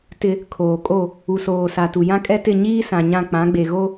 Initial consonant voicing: voiceless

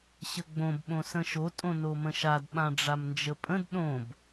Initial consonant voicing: voiceless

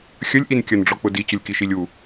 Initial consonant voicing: voiceless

